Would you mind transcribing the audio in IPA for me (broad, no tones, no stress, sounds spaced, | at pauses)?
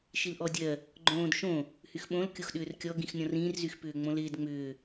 ʃ i l ʔ ɔ dʲ ɜ | ɡ͡ǃ õː d ʃ õ | h y x ɓ õ l kʲ o x ɗ ʏː r kʲ ɔ ɡ ĩ x nʲ ɔ̃ r ĩː r z y x p ʏː ŋ͡m õ l ɪː d ŋ͡m ʏː